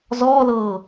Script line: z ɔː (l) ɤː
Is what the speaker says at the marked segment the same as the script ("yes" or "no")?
yes